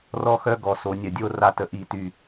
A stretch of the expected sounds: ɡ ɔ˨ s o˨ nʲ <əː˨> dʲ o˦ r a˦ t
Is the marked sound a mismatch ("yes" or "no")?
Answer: yes